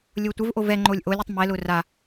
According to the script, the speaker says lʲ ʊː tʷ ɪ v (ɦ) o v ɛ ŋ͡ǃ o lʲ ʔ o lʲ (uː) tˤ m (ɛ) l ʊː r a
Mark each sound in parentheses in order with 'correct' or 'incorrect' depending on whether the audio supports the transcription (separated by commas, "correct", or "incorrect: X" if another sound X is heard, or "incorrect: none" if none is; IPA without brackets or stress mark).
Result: incorrect: ʔ, incorrect: u, correct